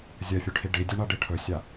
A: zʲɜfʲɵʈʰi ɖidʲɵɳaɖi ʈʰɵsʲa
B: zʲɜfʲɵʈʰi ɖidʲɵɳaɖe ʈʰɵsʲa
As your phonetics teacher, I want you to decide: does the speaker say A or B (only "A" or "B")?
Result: A